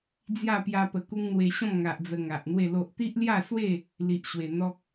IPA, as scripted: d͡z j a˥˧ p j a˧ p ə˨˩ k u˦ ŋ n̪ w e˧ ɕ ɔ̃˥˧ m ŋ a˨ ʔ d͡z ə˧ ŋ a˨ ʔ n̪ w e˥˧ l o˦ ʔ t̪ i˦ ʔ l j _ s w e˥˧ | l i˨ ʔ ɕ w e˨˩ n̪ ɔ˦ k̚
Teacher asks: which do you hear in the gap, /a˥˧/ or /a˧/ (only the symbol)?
a˥˧